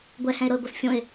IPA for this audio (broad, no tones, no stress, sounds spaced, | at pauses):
ɡʷ ɛ h ɛ̃ e̯ ɾ ɤ e̯ ɡʷ ɤ s fʲ õ e̯